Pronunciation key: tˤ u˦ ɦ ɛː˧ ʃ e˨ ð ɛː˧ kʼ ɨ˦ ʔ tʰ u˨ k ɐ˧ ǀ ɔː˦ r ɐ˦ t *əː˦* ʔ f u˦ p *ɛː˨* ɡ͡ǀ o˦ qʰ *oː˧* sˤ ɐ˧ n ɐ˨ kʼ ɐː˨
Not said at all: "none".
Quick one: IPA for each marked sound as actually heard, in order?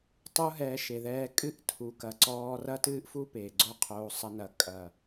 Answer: ɨː˦, eː˨, oː˧

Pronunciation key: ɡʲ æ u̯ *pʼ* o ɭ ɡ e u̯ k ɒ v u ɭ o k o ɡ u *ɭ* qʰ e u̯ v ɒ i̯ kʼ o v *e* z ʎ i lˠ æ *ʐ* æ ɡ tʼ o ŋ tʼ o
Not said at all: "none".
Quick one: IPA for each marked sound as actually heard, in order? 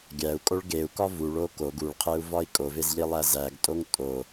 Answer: kʼ, ɭ, e, z

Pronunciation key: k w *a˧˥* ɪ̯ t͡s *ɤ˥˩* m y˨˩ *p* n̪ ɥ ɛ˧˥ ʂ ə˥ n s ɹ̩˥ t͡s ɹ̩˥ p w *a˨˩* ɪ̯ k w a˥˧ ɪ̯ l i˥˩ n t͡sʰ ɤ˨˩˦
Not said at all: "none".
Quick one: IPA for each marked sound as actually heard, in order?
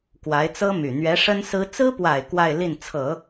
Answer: a˧˥, ɤ˥, none, a˨˩

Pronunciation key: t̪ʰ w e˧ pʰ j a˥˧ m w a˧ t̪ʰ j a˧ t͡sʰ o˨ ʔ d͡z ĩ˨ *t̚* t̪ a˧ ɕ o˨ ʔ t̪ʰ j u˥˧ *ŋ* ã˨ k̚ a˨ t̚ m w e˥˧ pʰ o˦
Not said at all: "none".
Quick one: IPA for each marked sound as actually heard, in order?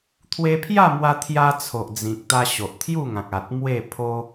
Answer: k̚, ŋ

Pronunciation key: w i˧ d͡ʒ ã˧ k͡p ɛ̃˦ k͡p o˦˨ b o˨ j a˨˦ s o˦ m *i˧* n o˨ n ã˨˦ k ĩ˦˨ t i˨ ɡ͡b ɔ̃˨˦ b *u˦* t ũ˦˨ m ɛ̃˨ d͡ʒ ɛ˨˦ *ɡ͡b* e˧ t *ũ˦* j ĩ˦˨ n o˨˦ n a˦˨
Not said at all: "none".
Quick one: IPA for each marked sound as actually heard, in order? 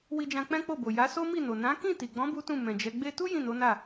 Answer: i˦˨, u˦, ɡ͡b, u˦

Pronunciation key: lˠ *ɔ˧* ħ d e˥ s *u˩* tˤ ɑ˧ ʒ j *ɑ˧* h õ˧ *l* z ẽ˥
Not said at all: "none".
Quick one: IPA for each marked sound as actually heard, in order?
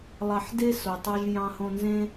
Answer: ɑ˧, o˩, ɑ̃˧, n

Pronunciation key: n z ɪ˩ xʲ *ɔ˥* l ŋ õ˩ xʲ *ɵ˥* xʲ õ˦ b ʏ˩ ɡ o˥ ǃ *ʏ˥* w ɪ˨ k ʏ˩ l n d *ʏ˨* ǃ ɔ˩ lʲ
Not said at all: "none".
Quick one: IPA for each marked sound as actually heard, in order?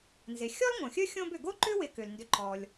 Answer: ɔ˥, ɵ˥, ʏ˥, ʏ˨

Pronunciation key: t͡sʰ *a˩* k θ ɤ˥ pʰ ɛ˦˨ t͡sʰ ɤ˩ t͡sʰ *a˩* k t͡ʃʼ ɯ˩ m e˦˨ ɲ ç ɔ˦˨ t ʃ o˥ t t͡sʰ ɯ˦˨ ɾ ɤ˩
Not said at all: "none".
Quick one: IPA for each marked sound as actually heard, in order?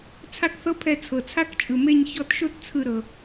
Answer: a˥, a˥

